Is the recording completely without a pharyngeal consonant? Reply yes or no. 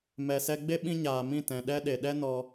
yes